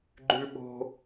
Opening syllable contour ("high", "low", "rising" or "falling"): high